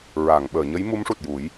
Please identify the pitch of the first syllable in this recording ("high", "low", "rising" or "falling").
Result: low